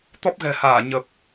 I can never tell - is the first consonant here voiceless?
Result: yes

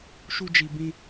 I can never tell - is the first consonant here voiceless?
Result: yes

